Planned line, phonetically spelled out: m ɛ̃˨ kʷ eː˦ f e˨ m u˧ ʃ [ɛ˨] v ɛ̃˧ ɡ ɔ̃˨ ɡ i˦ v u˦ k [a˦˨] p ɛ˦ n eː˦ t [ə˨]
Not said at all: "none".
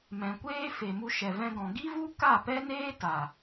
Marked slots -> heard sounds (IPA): ɛ˨, a˦˨, a˨

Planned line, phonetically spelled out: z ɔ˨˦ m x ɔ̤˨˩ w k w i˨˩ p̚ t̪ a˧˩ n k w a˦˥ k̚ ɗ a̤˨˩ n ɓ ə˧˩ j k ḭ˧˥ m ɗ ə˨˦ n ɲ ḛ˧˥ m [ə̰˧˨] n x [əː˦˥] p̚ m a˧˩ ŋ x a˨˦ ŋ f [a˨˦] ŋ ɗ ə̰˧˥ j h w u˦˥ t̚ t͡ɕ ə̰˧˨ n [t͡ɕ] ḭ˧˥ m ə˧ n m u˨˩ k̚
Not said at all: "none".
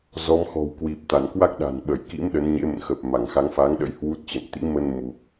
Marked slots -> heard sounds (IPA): ə̰˧˨, əː˨˩, a˨˦, t̪

